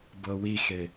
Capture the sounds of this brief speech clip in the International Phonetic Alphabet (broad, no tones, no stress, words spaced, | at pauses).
bɤwixe